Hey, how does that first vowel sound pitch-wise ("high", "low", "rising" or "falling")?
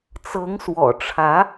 rising